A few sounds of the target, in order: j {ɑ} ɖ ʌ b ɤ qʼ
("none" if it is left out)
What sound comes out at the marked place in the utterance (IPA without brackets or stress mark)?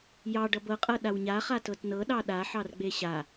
ɑ